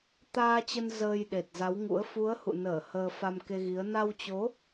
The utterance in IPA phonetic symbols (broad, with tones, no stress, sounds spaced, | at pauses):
t̪ aː˧ t͡ɕ ə˧ n z əː˧ j ɗ e˨˩ t̚ z a˨˦ w ŋ ṵ˧˥ ə̯ f u˨˦ ə̯ h ṵ˧˨ n əː˧˩ h əː˧ f a˧ m k e˧ ɣ i˨˦ ə̯ n a˧ w t͡ɕ o˨˦